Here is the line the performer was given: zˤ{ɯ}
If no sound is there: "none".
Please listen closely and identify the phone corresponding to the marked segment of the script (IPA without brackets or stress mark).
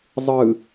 ɯ